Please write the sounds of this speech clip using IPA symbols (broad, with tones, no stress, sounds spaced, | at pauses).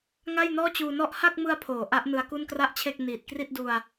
ŋ a˥˩ j n ɔː˥˩ t͡ɕ uː˧ n ɔ˥˩ ʔ h a˥˩ k̚ m ɯ˧ a̯ pʰ oː˩˦ ʔ a˦˥ ʔ n ɯ˧ a̯ k u˥˩ n k r a˥˩ ʔ t͡ɕʰ e˥˩ k̚ n iː˨˩ t̚ k r i˥˩ t̚ d u˧ a̯